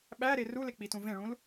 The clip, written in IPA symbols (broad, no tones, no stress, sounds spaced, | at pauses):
ɓ æ ɾ e r u l e k͡p i t ũ v ẽ ɭ ũ l